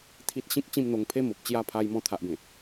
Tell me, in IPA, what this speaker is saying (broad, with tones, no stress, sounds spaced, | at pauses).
t̪ʰ i˦ t̚ ɕ ĩ˦ k̚ t͡ɕ ĩ˥˧ m n̪ o˧ ŋ pʰ e˦ m o˨ p̚ t͡ɕ j a˥˧ pʰ a˧ j m ɔ̃˧ t̪ʰ a˨ ʔ b ẽ˨˩